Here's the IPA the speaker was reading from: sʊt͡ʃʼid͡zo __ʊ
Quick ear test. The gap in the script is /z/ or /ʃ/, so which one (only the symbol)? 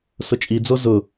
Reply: z